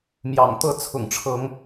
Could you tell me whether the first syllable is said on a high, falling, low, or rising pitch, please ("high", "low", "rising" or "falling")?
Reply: low